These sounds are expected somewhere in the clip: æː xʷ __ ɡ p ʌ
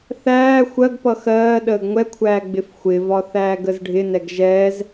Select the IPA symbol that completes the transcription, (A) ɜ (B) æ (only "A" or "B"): A